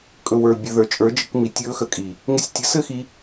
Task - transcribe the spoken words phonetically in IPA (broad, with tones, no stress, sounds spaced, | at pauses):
kʼ ɵ˨ w ə˞˨ bʲ ɘ˨ ð ə˞˨ t͡ʃʼ ə˞˨˦ d͡ʒ ɪ˧ k m i˨ tʲ ɵː˧ x ə˨ kʼ i˨ | ŋ ɪ˧ sʲ tʲ ɘ˨˦ s ɘ˦˨ x i˧